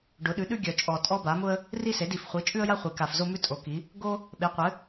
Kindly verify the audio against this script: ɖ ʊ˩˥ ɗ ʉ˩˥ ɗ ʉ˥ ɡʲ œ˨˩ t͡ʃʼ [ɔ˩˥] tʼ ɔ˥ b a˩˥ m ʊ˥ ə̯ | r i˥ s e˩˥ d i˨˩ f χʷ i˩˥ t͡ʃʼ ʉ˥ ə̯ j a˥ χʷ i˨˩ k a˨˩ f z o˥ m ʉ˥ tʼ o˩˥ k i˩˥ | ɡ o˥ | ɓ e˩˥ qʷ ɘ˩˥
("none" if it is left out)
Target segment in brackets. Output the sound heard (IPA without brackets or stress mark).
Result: ɔ˨˩